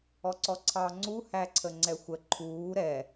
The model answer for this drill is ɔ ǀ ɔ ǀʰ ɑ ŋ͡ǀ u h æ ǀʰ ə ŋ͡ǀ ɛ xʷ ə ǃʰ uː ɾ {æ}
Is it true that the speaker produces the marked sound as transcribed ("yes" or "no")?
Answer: no